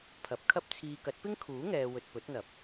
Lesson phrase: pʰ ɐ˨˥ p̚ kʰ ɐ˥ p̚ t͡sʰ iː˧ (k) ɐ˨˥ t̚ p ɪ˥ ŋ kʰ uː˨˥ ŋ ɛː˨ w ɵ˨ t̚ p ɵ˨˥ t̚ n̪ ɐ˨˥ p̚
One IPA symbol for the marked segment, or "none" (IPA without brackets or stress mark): k